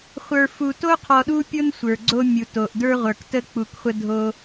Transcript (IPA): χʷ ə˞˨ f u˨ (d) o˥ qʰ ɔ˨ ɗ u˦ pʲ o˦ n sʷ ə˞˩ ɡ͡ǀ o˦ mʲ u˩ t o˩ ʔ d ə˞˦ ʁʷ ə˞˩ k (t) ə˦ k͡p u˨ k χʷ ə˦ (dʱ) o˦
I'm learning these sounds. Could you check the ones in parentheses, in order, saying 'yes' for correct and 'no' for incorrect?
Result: no, yes, yes

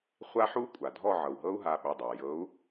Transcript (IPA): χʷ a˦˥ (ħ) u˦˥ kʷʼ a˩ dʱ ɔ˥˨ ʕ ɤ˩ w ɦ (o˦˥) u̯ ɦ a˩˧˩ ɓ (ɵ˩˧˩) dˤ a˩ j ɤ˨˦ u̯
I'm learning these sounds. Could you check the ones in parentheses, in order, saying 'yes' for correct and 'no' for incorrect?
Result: yes, no, yes

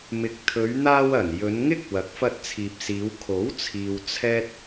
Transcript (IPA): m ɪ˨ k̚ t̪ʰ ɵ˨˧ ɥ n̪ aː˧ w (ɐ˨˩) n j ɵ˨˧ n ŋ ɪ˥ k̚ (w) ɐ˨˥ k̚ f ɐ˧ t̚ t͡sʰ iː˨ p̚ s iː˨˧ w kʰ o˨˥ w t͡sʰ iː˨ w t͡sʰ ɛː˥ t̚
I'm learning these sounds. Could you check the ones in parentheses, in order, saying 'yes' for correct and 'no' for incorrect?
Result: yes, yes

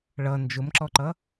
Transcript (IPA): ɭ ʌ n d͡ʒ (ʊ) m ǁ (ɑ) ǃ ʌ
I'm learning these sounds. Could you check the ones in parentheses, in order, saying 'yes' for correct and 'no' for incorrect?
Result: yes, no

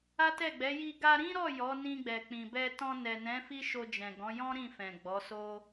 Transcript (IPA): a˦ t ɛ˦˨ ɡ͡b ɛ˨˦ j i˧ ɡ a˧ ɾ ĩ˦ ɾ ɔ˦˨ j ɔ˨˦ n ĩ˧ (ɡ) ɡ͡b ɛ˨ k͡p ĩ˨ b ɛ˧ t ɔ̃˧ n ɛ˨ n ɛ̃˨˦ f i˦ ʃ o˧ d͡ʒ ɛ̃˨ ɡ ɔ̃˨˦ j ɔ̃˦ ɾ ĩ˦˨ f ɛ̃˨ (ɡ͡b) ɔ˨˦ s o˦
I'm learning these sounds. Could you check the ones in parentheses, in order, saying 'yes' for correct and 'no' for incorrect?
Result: no, yes

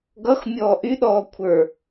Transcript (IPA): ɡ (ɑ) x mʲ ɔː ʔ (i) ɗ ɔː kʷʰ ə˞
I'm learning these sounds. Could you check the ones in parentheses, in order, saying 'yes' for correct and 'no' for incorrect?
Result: no, no

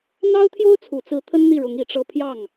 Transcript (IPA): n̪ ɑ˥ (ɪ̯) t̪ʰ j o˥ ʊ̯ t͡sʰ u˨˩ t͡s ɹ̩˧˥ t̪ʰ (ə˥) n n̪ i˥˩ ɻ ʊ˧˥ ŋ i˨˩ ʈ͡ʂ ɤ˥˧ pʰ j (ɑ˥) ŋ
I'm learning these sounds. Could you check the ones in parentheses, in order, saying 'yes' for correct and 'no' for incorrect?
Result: no, yes, no

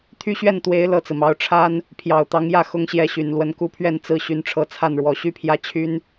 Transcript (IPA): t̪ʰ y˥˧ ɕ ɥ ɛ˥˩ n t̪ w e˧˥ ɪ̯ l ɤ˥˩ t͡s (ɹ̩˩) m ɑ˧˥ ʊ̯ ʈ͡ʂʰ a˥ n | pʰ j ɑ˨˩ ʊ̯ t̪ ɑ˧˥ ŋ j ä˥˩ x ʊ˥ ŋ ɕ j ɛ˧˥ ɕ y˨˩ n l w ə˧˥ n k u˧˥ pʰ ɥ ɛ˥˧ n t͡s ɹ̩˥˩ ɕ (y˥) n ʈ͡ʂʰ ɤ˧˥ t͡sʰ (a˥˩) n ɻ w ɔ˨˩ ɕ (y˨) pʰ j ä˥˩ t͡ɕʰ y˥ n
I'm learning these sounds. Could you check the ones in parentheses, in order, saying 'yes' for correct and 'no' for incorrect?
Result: yes, no, yes, no

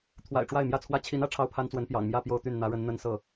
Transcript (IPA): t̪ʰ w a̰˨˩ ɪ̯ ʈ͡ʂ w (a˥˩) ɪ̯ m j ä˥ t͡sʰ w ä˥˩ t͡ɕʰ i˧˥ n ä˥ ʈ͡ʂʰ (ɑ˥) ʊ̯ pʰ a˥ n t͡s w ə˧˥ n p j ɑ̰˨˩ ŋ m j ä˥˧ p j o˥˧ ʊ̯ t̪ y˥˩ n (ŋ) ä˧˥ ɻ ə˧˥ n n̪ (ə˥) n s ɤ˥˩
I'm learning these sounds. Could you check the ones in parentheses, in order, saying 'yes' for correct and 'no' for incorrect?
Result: yes, yes, no, yes

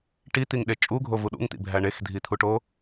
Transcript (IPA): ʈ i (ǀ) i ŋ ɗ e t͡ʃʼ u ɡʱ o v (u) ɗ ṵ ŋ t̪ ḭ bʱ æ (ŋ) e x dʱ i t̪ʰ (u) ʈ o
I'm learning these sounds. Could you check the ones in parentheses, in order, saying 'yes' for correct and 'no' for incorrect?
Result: no, yes, no, yes

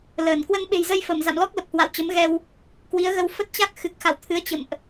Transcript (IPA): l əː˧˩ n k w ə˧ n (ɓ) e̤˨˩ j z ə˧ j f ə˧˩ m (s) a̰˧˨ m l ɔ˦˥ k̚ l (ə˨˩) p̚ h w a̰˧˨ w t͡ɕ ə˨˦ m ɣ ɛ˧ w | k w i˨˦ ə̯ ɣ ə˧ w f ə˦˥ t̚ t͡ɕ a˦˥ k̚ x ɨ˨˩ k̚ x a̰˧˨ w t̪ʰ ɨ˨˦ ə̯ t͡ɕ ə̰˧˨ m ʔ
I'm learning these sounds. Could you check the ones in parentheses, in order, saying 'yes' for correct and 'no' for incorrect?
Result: yes, no, yes

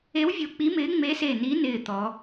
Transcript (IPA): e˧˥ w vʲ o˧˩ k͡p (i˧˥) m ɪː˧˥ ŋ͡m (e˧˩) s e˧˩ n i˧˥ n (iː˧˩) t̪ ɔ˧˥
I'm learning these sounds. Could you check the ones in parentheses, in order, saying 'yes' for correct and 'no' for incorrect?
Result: yes, no, no

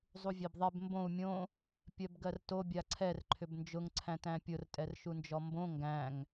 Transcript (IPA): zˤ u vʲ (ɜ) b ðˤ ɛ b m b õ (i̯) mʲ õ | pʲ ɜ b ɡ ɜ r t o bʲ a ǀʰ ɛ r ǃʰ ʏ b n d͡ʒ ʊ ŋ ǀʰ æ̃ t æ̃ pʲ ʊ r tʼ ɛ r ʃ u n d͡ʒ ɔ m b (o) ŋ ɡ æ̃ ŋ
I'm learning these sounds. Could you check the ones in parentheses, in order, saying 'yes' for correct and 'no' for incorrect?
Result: no, no, no

